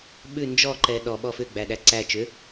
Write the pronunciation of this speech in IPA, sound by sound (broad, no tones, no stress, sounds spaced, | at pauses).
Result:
ɓ ʉ n d͡ʒ ɔ ǃ ɛ ɗ ɔ ɓ ɔ f ʏ ɡ͡b æ ɗ æ ǀ æ t͡ʃ ʏ